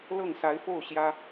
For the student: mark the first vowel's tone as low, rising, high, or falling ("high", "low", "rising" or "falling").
falling